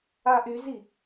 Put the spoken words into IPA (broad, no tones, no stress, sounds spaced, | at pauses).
a ʔ y z i